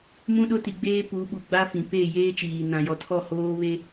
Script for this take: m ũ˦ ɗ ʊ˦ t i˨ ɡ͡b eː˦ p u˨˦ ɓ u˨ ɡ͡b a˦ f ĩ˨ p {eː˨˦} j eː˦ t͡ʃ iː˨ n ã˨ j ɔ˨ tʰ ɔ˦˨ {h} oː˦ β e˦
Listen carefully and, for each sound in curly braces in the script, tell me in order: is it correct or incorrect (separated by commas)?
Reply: incorrect, correct